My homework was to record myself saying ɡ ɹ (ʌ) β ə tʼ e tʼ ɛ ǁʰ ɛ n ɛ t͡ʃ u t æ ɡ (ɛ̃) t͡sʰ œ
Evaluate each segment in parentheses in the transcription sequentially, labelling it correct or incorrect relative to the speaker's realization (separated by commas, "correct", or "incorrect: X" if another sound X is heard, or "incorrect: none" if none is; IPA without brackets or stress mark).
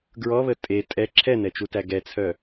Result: incorrect: ɔ, incorrect: ɛ